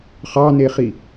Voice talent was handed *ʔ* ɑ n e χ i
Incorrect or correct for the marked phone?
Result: incorrect: χ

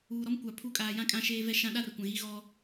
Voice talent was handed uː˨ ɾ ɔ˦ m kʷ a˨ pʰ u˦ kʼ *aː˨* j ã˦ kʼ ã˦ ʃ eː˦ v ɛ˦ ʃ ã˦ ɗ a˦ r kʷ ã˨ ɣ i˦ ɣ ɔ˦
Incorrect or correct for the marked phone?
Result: correct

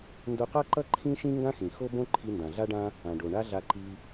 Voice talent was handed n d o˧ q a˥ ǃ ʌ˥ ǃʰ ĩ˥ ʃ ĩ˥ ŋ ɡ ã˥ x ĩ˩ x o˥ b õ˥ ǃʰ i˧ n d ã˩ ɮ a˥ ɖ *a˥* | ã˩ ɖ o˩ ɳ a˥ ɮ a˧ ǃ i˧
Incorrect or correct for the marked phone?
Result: incorrect: ã˥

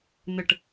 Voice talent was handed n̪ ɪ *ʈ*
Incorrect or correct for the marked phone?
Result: correct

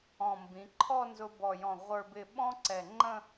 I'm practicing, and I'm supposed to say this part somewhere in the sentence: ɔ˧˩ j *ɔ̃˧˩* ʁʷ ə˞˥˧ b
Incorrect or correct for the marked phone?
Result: correct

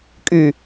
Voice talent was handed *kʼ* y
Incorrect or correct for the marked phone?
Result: correct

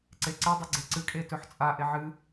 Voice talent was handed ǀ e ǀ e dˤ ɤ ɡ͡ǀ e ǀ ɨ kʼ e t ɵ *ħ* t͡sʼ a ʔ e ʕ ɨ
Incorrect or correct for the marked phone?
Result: correct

